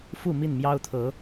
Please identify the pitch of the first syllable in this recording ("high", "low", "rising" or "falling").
falling